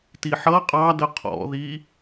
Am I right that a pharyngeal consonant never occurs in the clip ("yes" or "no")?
no